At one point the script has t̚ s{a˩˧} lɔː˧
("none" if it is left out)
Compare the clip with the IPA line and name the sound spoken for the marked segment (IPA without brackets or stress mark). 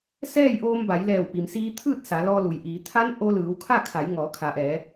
a˩˧